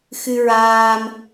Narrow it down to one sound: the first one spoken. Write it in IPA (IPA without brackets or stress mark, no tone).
x